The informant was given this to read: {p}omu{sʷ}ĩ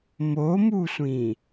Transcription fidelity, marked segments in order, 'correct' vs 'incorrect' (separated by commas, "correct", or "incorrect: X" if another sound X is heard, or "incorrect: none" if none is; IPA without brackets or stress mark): incorrect: m, correct